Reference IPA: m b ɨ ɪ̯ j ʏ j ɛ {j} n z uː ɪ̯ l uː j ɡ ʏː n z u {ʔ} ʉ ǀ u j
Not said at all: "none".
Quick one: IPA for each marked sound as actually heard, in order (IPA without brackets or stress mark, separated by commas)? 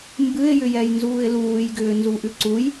j, ʔ